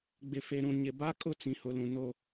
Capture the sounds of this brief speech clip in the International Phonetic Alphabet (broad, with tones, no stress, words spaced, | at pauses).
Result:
ɡ͡bɪ˨fe˨ɾũ˨ ɲɪ˨ba˦ kʼʊ˦t͡sĩ˨hʊ˨lũ˨ no˦